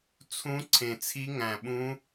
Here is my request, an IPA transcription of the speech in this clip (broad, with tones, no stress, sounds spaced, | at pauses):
t͡sʰ ũ˧˥ ǀʰ ẽ˨˩ t͡sʰ i˧˥ ŋ æ̃˨˩ ɓ ũ˧˥